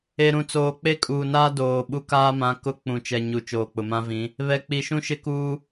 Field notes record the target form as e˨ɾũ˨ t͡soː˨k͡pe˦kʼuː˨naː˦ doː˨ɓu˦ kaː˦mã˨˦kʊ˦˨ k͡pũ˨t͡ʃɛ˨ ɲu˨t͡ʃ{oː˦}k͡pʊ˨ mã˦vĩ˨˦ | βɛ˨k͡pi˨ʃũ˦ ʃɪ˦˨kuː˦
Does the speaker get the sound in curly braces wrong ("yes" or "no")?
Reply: yes